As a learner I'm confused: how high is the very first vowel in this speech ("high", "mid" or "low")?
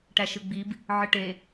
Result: low